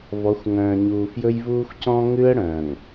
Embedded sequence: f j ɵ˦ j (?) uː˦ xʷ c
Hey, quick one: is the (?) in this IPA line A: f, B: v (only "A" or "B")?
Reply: B